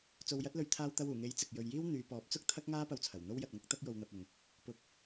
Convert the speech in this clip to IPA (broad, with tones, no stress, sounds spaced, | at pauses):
t͡s o˧ w j ɐ˥ t̚ l ɵ˧ ɥ t̪ʰ aː˧ w t̪ ɐ˧ w uː˨˩ ŋ e˨˥ j t͡s ɪ˨ k̚ j ɵ˨ ɥ j iː˥ w n̪ yː˨˧ p ɔː˨˥ p̚ t͡s ʊ˥ k̚ t̪ʰ ɐ˥ k̚ ŋ aː˥ p ɐ˧ w t͡sʰ ɐ˨˩ w n̪ o˥ w j ɐ˧ t̚ ŋ ɐ˥ k̚ t̪ ɐ˥ k̚ j o˧ w n̪ ɐ˧ p̚ ʊ˨ ŋ | p ʊ˧ k̚